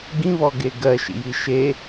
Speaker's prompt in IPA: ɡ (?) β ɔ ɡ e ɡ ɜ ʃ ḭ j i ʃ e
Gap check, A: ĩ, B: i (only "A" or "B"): A